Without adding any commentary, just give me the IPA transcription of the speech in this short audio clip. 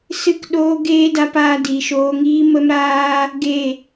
s ɨ˦˨ k ɗ oː˦ ɡ eː˦ d a˧ p aː˧ d i˨ ʃ oː˧ ŋ iː˦ m ə˦ m ɾ aː˦ | ɡ e˦˨

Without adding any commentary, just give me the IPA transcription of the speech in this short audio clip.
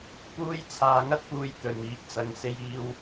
p uː˥ j t͡sʰ aː˧ ŋ ɐ˥ t̚ p uː˧ j t̪ ɵ˨ n iː˨˥ p̚ t͡s ɐ˨˧ ŋ s e˧ j iː˧ w

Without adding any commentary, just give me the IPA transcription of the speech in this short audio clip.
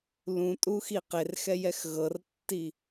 l ũ tʼ u x i q e r x ɛ j ɛ x ɣ ɤ r tː i

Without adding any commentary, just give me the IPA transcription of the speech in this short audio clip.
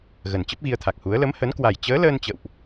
ɣ ə˨˩ n t͡ɕ ə˦˥ p̚ ɣ i˧ ə̯ t̪ʰ a˨˩ k̚ h u˨˦ ə̯ l ə˨˦ m h ə˨˦ n k w a˨˩ j t͡ɕ əː˨˦ l əː˧ n t͡ɕ ə̰˧˨ w ʔ

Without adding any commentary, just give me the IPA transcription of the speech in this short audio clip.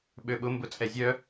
ɓ ø ɓ ʊ m b ʊ t͡sʼ ɛ zʲ œ

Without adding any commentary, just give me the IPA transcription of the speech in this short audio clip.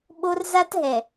ɓ o˦ r z a˦ t ɦ ɛ˨

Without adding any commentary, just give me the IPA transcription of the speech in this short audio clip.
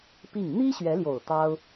p i˥˩ ŋ n̪ i˥ ɕ ɥ ɛ˧˥ l j o˨˩ ʊ̯ t̪ ɑ˥ ʊ̯

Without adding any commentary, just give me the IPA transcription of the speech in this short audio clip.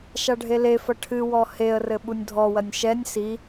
ʃ a ɖʱ e l e f ɐ ʈʰ ɨ w ɔ h e ə̯ r ɘ ɓ u nʲ dʱ ɔ w ɐ nʲ ʃ ɛ nʲ s i

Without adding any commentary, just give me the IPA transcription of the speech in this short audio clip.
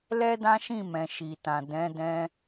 l ɛ˦ d ã˦ ʃ ĩ˦˨ m ɛ̃˨ ʃ i˨ t ã˨ d ɛ̃˨˦ d ɛ̃˧

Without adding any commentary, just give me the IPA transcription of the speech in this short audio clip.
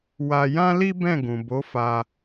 w a˧ j ã˦ l i˦ b ɛ̃˦˨ ɡ ũ˨ b o˨˦ f a˧

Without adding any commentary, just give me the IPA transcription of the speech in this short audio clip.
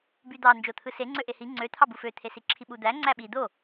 b y d̪ ɑ n d͡ʒ o t̪ʰ ɯ s e ŋ͡ǀ ø ʔ e h i ŋ͡ǀ ø t̪ʰ ɑ b u f ø t̪ʰ e s i ǁʰ i ɓ u d̪ æ ŋ͡ǀ æ ɓ i d̪ o

